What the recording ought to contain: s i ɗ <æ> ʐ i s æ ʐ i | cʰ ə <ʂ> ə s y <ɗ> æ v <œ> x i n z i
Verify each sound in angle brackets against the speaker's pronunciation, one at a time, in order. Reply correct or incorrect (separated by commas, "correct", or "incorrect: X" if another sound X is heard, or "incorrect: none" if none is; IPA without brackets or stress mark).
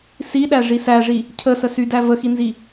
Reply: correct, incorrect: s, incorrect: d, incorrect: ə